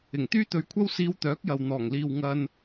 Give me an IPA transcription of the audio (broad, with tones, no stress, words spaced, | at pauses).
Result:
ɪ˨˩ŋt̪yː˥t̪ɵ˧ɥkʷʰɐ˥w siː˧wt̪œː˨˥k̚jɐ˨w n̪ɔː˨˩ŋliː˨w ŋɐ˨n